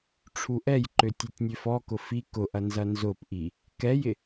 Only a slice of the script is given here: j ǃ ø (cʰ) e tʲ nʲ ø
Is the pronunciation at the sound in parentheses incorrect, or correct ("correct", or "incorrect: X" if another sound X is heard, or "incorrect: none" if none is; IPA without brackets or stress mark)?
incorrect: tʲ